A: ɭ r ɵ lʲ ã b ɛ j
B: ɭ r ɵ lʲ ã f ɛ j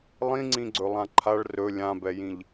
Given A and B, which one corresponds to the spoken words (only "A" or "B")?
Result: A